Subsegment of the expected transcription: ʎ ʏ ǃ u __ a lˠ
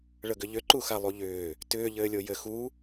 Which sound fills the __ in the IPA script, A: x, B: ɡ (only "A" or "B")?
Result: A